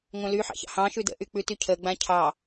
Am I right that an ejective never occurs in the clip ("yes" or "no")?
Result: yes